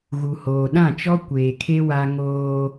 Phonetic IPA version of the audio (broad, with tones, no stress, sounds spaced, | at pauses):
ɣ u˨ h oː˨ ɗ ã˦˨ t͡ʃ ɔ˦ kʷ eː˨ kʰ e˦ w a˦ ŋ oː˦